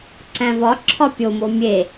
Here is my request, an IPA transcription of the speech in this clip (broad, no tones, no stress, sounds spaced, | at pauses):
ǀ æ̃ v ɒ ǁʰ ɒ pʲ o m o mʲ e